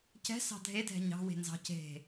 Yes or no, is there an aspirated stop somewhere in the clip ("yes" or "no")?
no